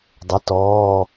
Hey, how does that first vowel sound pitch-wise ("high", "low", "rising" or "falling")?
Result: rising